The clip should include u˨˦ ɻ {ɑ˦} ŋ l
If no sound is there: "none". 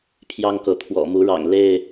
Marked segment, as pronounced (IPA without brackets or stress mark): ɑ̰˨˩